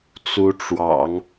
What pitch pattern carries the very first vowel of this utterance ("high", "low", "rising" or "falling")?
rising